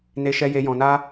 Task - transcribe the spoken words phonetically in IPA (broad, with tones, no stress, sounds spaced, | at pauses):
n e˦ ʃ ɛ˦ j e˦ j ɔ̃˧ n a˦